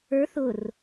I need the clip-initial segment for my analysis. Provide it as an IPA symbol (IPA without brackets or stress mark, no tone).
ə˞